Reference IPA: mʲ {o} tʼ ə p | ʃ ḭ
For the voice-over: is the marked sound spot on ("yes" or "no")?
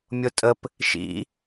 yes